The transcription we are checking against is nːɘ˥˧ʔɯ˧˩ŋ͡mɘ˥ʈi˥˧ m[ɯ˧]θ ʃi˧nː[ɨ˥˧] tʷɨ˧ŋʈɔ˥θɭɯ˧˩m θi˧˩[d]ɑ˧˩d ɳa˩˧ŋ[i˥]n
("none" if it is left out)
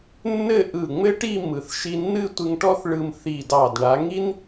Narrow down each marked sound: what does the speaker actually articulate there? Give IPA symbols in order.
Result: ɯ˩˧, ɨ˥˧, d, i˥

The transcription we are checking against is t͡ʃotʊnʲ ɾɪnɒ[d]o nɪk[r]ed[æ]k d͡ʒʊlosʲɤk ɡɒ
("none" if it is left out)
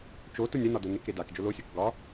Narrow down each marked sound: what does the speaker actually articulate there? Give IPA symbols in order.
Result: d, ɾ, a

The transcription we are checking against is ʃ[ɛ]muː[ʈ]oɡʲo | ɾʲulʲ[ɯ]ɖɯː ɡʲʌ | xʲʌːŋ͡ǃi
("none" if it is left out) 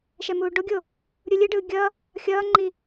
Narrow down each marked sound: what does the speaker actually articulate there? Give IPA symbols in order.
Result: ɛ, ɖ, ɯ

